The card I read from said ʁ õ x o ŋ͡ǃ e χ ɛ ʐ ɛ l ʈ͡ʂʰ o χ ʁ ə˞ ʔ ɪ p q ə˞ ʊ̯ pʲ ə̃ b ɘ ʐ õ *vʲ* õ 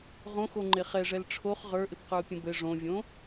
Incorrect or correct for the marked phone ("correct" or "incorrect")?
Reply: correct